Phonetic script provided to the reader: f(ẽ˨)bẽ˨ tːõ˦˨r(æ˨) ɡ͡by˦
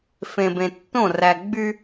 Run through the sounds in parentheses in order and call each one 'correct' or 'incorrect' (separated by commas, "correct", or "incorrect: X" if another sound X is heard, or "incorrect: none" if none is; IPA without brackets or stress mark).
correct, correct